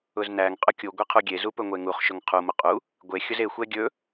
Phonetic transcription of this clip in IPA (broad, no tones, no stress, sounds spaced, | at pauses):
ʊ z n æ ŋ qʼ ʊ kʲ u ɡʷ e qʰ u ɡʲ e z u p ɵ ŋʷ e ŋ u χ ʃ ʊ ŋ qʰ u m ʊ qʼ u | ɡʷ e xʲ ʊ z e xʷ ɛ ɡʲ ɵ